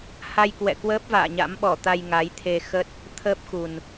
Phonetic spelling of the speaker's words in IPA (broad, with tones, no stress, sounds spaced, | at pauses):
h a˧ j k w ɛ̰˧˨ k w əː˦˥ p̚ v a̰ː˧˨ ɲ a̰˧˥ m ɓ ɔ˧˩ t̪ a˧ j ŋ a˨˦ j t̪ʰ e˧ x ə˦˥ t̚ | t̪ʰ əː˦˥ p̚ x u˨˩ n